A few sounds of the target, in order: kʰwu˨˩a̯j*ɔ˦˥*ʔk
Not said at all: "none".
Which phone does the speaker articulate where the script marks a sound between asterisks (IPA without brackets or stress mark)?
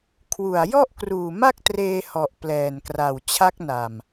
ɔ˥˩